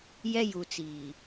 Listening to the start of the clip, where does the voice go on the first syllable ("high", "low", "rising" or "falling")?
high